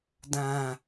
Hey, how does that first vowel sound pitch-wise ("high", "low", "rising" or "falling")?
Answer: low